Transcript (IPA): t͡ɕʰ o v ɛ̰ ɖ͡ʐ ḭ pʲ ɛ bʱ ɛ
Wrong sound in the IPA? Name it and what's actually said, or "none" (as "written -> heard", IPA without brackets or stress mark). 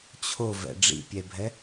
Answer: none